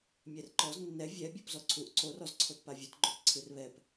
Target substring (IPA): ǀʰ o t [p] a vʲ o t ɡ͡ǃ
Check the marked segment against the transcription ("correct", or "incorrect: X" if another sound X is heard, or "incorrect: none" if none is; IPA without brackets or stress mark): correct